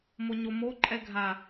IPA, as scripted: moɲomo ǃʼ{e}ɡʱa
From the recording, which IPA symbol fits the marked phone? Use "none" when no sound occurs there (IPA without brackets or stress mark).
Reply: ɛ